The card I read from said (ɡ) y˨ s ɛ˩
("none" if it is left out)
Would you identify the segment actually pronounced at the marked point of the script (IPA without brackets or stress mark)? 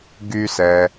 ɡ